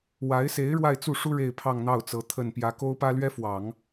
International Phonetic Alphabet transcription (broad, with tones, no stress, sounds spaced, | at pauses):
w a˧˥ ɪ̯ s e˧˥ ɪ̯ ɻ w a˥˧ ɪ̯ t͡s u˥˩ ʂ u˥ ɻ e˥˧ ɪ̯ pʰ ɑ˥˧ ŋ n̪ ɑ˥˩ ʊ̯ t͡s ɤ˧˥ t̪ʰ ə˨˩ n p j ä˧˥ k o˥ ʊ̯ p ä˥ l ɥ ɛ˥ f w ɑ˨˩˦ ŋ